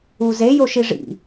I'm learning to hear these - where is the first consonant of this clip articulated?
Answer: tongue tip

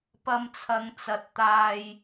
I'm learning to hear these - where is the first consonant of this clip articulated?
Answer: lips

